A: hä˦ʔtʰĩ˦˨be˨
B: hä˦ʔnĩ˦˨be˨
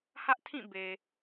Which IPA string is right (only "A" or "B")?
A